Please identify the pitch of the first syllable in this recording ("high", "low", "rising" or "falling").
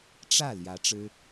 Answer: falling